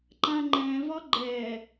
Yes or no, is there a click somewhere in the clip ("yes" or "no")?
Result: yes